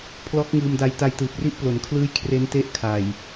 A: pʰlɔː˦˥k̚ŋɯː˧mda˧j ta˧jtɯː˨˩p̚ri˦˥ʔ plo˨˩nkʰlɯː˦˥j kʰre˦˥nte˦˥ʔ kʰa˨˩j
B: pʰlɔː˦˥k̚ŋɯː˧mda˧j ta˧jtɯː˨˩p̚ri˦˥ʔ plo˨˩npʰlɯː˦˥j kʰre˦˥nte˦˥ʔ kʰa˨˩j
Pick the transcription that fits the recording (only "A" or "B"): A